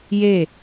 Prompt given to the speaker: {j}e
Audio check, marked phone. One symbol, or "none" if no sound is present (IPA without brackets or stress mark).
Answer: j